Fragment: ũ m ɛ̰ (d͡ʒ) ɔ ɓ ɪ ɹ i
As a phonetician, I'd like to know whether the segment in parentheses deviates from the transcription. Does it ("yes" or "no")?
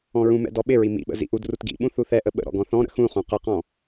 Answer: yes